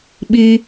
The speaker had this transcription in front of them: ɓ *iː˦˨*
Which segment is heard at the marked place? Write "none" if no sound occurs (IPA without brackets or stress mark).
iː˦